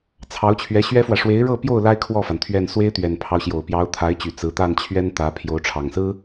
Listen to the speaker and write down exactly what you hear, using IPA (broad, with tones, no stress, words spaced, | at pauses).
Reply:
t͡sʰɑ˧˥ʊ̯t͡ɕʰɥɛ˧˥ɕɥɛ˥fwä˨ ʂwe˧˥ɪ̯ɻɤ˥˧pjo˥˩ʊ̯ la˥ɪ̯kʰwɔ˥˩fa˩n t̪ʰɥɛ˥˩n swe˥ɪ̯t̪ɥɛ˨˩npʰɑ˦ʊ̯ ɕjo˨˩ʊ̯pjɑ˧˥ʊ̯t̪ʰa˧˥ɪ̯t͡ɕy˨˩ t͡sɹ̩˧˥ t̪a˥˩nt͡ɕʰɥɛ˥nt̪ä˧˥ pʰjo˧˥ʊ̯ʈ͡ʂʰɑ˨˩ŋsɹ̩˥